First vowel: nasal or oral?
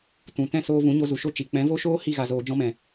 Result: nasal